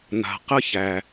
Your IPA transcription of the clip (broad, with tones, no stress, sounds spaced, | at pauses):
n̪ a̤˩ q ə˧ ç æ˩